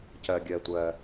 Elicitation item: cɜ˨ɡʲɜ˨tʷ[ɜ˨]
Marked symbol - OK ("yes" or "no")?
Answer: yes